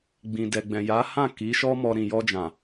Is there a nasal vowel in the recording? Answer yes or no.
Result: yes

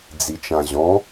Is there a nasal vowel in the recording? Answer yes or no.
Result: yes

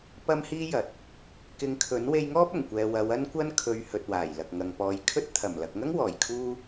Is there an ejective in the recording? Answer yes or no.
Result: no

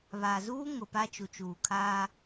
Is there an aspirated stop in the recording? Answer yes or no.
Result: yes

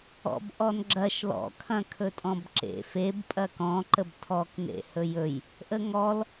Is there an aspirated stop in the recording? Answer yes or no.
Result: yes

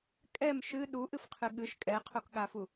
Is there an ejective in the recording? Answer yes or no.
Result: yes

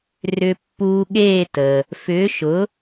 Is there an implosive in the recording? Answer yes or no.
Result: yes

